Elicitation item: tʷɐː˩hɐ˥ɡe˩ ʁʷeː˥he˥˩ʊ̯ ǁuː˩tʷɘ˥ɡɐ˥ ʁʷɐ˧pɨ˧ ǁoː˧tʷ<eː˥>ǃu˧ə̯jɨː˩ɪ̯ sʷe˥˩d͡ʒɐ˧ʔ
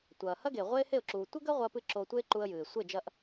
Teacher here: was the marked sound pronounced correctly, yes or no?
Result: yes